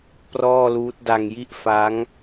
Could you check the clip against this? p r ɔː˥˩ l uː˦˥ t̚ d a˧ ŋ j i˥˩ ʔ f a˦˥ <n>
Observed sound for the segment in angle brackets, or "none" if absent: ŋ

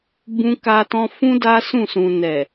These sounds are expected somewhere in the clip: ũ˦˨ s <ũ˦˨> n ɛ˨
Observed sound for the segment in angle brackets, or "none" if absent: ũ˨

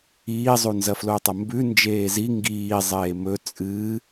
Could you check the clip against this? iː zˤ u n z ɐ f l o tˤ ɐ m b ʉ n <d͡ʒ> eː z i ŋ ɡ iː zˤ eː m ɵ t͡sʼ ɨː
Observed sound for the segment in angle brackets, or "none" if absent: d͡ʒ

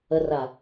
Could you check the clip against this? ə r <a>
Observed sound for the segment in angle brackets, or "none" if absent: a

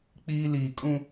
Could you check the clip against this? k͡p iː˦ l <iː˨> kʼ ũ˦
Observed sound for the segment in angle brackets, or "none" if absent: iː˨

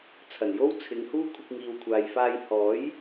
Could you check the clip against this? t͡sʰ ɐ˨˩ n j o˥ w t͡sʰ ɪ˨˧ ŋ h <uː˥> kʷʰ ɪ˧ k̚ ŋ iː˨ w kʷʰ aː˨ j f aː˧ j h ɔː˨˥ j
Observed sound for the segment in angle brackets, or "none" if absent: uː˥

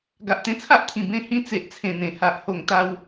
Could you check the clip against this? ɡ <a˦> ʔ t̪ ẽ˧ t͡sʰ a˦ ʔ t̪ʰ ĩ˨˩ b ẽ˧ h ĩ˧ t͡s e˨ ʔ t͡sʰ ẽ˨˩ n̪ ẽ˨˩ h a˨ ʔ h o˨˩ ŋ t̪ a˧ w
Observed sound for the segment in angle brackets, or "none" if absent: a˨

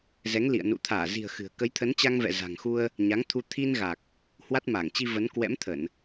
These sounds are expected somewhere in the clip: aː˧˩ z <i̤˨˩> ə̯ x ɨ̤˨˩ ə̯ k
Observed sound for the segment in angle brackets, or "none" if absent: i̤˨˩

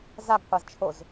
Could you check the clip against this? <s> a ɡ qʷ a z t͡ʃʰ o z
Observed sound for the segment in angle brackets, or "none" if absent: z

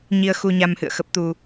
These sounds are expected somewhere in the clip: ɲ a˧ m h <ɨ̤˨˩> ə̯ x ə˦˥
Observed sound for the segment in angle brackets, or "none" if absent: ɨ̰˧˨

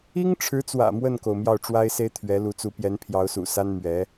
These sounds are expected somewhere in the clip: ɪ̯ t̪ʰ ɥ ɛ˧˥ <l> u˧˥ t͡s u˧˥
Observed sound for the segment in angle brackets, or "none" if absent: l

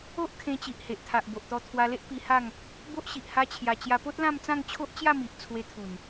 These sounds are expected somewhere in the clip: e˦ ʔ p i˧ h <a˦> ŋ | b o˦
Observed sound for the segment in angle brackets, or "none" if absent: a˥˧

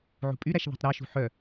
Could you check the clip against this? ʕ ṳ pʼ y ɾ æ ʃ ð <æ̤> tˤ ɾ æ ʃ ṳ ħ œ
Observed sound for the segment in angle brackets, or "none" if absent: æ̤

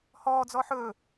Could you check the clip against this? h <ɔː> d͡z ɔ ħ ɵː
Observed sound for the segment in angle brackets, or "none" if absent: ɔː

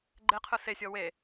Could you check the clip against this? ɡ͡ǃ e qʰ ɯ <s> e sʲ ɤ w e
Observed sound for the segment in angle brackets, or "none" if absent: s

